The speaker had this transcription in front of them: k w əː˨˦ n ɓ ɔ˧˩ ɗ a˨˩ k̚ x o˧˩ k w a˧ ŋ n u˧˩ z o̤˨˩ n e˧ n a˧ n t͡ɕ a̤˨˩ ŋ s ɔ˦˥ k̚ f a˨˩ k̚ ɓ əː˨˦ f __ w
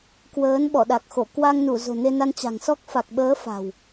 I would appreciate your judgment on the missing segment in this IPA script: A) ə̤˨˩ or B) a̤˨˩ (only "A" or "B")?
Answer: B